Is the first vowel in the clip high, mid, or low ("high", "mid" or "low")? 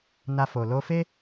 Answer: low